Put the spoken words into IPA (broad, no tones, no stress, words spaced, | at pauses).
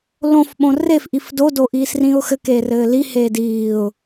lõfɓõ refʔif dodo ʔiːsrĩʊ̯xɘk eːrɘːliheː diːʊ̯